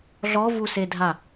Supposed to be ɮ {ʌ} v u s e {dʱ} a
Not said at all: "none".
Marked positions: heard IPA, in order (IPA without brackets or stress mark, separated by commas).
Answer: ɔ, dʱ